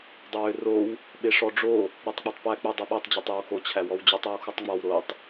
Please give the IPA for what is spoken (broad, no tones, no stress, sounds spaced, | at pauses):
dˤ ʏ w ʏ r o w | ɓ e ʂ ɔ ɖ͡ʐ o | ɾ o tˤ k͡p o tˤ p æ k͡p ʏ dˤ u ɓ u tˤ d͡ʑ e tˤ ɔ w x o t͡ɕʰ æ w ɔ w d͡ʑ u tˤ o w x u tˤ ŋ͡m ɔ w ɾ o tˤ